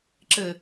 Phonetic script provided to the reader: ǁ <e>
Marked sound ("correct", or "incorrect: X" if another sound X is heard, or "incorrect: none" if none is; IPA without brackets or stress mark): incorrect: ɘ